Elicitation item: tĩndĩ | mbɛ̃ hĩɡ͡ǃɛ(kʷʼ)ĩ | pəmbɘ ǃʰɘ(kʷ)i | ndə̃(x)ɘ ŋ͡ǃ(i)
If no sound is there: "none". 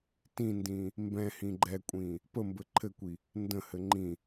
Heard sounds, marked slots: kʷʼ, kʷ, h, ĩ

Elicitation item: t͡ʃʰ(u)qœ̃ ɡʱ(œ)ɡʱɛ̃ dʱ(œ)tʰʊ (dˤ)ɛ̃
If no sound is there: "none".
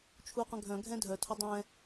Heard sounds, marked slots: u, œ̃, œ, dˤ

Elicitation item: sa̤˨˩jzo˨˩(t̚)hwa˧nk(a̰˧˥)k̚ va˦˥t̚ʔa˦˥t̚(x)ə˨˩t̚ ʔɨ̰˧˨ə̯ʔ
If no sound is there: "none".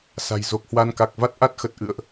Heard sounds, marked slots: k̚, a˨˩, x

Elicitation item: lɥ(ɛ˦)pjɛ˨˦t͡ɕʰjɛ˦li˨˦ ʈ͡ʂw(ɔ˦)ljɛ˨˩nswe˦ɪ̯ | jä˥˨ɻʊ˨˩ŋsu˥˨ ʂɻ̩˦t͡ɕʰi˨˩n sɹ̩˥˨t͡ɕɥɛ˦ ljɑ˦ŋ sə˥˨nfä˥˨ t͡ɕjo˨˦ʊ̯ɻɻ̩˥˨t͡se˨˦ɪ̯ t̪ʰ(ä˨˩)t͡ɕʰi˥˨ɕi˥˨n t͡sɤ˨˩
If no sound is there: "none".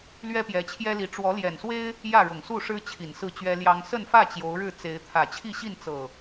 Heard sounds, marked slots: ɛ˦, ɔ˨˦, ä˨˩

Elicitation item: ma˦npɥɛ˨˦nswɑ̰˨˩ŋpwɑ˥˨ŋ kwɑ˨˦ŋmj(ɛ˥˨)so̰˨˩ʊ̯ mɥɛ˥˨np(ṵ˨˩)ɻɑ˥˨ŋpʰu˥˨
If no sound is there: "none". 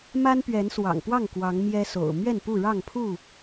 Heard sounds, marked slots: ɛ˦, u˥˨

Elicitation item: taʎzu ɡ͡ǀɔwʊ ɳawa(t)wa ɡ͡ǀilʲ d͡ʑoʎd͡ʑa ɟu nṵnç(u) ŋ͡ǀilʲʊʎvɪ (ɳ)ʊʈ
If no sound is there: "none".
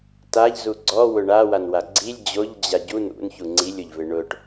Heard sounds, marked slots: n, u, ɳ

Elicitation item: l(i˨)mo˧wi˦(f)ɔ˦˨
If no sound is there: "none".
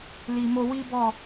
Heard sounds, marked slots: i˨, b

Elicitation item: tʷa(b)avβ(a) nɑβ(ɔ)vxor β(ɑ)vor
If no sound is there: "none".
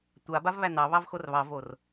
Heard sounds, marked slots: b, æ, ɑ, ɑ

